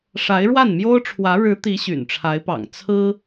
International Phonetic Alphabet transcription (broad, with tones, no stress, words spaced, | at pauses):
ʂa˧˥ɪ̯ɻwa˥˩nmjo˥ʊ̯ʈ͡ʂʰwä˧˥ ɻɻ̩˧˥ t̪i˧˥ ɕy̰˨˩nʈ͡ʂʰa˧˥ɪ̯pɑ̰˨˩ŋ t͡sʰɹ̩˥